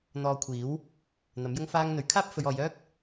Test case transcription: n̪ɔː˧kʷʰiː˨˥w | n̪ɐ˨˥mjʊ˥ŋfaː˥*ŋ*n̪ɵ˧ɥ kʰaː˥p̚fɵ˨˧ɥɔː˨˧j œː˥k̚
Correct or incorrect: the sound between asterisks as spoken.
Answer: correct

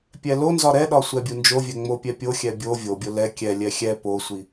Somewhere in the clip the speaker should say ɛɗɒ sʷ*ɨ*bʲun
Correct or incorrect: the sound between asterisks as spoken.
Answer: incorrect: ɛ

